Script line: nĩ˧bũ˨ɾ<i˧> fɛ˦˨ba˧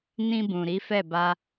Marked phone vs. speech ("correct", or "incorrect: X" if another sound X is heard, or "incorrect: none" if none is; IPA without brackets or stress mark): incorrect: i˨˦